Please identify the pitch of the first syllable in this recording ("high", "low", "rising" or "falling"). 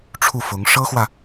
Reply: falling